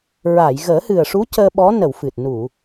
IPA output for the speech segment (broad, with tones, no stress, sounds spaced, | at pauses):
ɹ a˨˩˨ j ɣ əː˨˩˦ h ɨ˨˩ ə̯ ʂ u˧˥ c əː˧ ɓ ɔ˧˥ n ə˨˩˨ w f ɨ˨˩ t̚ n u˨˩˨